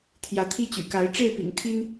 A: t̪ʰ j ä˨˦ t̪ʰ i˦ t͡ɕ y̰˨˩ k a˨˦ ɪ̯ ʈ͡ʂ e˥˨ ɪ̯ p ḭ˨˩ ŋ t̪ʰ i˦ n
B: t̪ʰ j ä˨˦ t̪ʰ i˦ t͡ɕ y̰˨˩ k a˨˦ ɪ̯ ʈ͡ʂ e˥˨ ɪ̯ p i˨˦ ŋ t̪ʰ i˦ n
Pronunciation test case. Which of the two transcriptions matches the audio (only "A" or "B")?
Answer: A